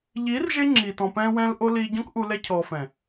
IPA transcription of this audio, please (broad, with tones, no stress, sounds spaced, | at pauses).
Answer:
ʎ iː˨˦ r ʒ e˦ ŋ͡ǁ iː˨ t ɔ̃˨ p ɛ̃ː˧ w ɛ̃ː˧ l ʔ o˧ l iː˧ ɟ ɔ̃˦ k ʔ u˧ l ɛ˧ cʰ ɔː˨ f ɛ̃˨